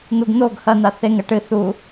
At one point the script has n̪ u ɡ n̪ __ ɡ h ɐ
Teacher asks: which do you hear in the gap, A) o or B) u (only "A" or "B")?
A